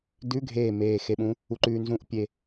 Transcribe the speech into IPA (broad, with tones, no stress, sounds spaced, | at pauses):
d ʉ˧˥˧ ɡʱ eː˧˩ m eː˧˩ x e˧ ɓ ũ˨˥ | u˧ ǃ ʉː˧ n z ũ˧˥˧ ʔ pʲ e˧